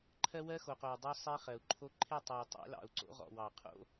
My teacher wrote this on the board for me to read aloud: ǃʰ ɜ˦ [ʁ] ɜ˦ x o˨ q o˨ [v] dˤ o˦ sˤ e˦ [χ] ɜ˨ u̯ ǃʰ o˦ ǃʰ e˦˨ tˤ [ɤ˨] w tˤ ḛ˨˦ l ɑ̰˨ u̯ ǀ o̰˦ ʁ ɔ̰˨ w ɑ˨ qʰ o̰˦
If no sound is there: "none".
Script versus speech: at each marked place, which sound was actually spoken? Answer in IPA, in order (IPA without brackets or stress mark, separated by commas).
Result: w, w, χ, ɔ˨